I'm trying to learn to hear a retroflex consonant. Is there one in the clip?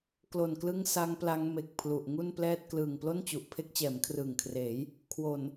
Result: no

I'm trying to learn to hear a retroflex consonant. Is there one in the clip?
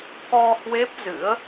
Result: no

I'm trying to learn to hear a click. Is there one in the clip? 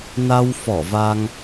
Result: no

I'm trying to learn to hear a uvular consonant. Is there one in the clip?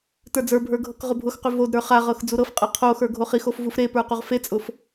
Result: yes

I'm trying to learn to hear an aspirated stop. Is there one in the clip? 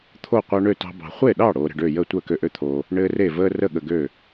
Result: yes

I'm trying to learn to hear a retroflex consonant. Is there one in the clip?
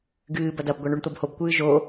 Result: yes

